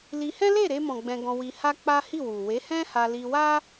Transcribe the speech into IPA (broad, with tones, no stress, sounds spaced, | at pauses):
l i˧ h ɛ̃˦ l e˦˨ ɾ e˧ m ɔ̃˨ ɡ͡b ɛ̃˧ ɡ ɔ̃˧ w i˧ h a˦ k͡p a˦ h i˦˨ w u˨ w e˨˦ h ɛ̃˦ h a˧ l i˧ w a˦